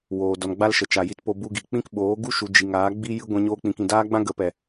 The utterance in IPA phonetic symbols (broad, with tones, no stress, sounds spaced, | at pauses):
w oː˨ d ɔ˨ n ɡ͡b a˦ l ʃ ə˨ t͡ʃ a˨ j i˧ t p o˧ b u˧ ɡ i˨ k͡p ĩ˦ k ɓ oː˨˦ ɡ u˦ ʃ u˨ d͡ʒ i˨ ŋ aː˨˦ ɡ͡b i˦ j ɨ˦ ɡʷ ɛ̃˧ ɲ oː˦ k͡p ĩ˧ k ĩ˧ d aː˦ ɡ͡b ã˦ ɡ ə˨˦ p ɛ˨